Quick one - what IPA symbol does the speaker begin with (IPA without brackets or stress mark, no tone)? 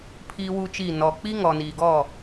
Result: pʰ